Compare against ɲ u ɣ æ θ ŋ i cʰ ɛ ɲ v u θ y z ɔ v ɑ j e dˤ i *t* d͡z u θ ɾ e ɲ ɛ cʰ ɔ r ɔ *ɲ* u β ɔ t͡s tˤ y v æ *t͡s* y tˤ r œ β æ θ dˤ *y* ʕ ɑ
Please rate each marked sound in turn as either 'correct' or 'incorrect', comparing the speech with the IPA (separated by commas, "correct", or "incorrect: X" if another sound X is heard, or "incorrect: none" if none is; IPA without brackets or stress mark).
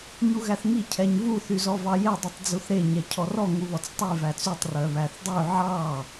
incorrect: tˤ, incorrect: ŋ, correct, correct